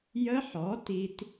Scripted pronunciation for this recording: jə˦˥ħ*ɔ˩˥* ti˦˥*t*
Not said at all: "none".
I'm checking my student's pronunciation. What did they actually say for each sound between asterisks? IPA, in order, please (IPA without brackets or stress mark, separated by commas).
ɔ˩˥, t